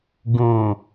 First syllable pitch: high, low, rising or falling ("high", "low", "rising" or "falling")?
low